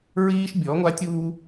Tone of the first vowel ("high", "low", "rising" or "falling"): high